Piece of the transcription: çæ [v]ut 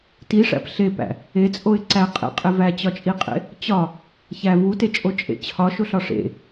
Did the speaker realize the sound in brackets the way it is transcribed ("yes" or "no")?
yes